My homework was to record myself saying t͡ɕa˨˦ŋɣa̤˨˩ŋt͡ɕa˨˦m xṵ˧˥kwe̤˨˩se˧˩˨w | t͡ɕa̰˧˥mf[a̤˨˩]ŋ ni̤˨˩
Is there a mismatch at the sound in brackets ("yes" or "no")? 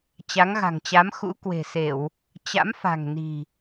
no